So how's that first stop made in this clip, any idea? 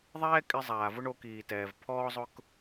ejective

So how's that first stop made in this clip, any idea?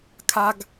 aspirated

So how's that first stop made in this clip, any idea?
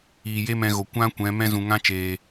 plain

